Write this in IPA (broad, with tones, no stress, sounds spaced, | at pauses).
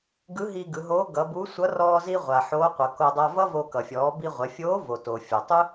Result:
ɡ ɯ˧˥ ɦ i˧ ɡ ɯ˩˧ ɦ oː˧˥ ɡ ʌ˩˧ b u˧˥ sʷ ʌ˧˥ r ɔː˧ z i˧ ʁʷ a˩ ħ oː˧˥ qʷ ʌ˩˧ k o˧ dˤ a˧ v ʌ˥ v o˧ k ʌ˩ fʲ ɔː˩˧ b i˧ ʁʷ ɛ˩˧ fʲ oː˧˥ v o˩ t o˩ fʲ ɔ˩ tˤ ɯ˥